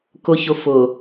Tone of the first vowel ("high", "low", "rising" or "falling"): low